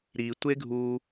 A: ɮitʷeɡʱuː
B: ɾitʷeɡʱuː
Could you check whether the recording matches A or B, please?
B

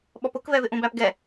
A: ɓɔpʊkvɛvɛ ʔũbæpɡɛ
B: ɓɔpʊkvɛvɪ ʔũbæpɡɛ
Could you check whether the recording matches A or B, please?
B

